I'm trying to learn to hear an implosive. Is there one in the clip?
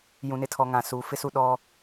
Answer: yes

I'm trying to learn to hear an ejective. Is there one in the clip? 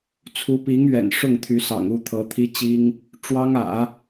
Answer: no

